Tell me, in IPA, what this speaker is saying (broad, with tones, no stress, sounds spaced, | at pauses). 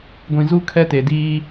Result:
ɡʷ ĩ˨ z u˦ kʰ ɛ˦ t e˨ d iː˦